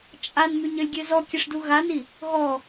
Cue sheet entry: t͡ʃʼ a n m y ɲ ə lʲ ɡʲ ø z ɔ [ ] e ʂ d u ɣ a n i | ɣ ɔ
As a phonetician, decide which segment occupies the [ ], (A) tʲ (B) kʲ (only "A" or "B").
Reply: B